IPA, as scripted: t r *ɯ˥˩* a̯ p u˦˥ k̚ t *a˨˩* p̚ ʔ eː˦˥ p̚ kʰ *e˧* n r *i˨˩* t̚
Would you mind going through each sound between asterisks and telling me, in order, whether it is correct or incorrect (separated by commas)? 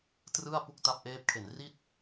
correct, incorrect, incorrect, incorrect